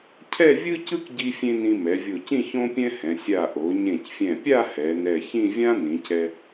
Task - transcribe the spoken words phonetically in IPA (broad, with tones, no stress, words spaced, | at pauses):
cʰɛ˥˧vʲɯ˥cɯ˥k ɟi˥fʲẽ˥ nĩ˧mɛ˩˧vʲo˧˩cĩ˥˧ çõ˥pʲɛ̃˥hɛ̃˩˧ sʲa˧˩ ʔo˩˧ɲẽ˧˩cfʲɛ̃˧˩pʲa˥˧ hɛ˩˧nɛ˧˩çĩ˥˧ vʲã˥nĩ˩˧c ɛ˧